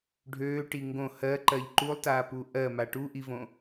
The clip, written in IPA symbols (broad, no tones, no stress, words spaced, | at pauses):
ɖʱøːʈi ŋɡõ hɜǃɜʎ ǃulˠtaːpu ʔɜma ʈuʔivõ